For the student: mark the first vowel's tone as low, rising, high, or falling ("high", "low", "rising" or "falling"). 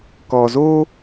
low